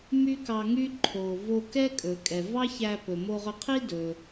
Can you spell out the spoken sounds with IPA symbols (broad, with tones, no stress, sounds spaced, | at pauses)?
m y˥ k ɑ˧ ŋ y˥ ǃʰ o˩ v o˧ k ɛ˥ kʼ ɵ˩ kʼ ɛ˩ v ɑ˥ ç æ˧ p ɵ˩ m o˧ ʁ ɵ˧ qʰ i˥ d ɵ˩